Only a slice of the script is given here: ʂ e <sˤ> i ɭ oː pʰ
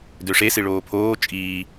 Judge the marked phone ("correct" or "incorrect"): incorrect